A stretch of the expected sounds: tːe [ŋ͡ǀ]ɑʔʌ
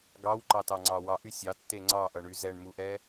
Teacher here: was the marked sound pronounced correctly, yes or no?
yes